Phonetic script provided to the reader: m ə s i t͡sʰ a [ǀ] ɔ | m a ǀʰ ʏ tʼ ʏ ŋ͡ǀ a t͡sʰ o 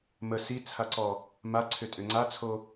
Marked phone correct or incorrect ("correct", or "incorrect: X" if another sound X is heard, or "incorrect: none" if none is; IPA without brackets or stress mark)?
correct